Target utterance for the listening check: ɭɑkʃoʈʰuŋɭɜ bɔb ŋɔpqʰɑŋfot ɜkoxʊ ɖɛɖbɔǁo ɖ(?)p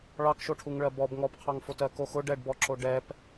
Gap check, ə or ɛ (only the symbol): ɛ